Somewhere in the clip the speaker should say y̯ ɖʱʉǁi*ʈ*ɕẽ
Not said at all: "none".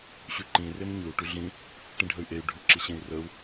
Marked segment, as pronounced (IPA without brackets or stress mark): none